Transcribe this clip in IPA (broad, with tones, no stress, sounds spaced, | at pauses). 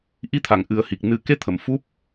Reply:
ʔ i˧˥ t̪ʰ a˨˩˨ ŋ ʔ ɨ˨˩˦ ə̯ h i˨˩ k̚ n ɨ˨˩˦ k e˧ t̪ʰ ə˨˩˨ m f u˦˥ p̚